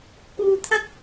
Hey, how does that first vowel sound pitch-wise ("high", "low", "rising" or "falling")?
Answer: low